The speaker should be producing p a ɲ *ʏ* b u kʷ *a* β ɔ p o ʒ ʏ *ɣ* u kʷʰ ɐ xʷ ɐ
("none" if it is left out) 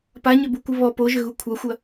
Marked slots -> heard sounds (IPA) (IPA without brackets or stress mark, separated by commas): ʏ, ə, ɣ